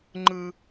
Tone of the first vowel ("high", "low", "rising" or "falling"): high